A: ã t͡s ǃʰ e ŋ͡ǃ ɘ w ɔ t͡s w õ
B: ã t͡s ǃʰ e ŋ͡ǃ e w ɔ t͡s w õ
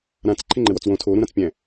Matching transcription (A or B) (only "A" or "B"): A